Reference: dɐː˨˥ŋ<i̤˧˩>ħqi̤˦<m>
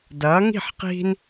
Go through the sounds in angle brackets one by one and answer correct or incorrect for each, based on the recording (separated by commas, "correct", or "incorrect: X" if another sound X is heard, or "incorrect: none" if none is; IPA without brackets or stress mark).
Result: incorrect: i̤˥˨, incorrect: n